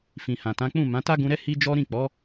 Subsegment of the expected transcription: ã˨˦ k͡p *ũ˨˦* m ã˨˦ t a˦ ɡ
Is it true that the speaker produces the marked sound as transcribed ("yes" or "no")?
no